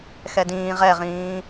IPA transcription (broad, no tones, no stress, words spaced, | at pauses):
xɛdĩː ʁɛʁĩː